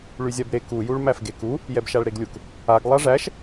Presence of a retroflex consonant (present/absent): present